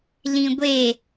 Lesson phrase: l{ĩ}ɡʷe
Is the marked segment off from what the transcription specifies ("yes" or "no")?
no